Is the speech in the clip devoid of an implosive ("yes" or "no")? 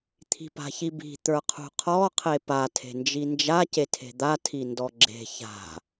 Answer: yes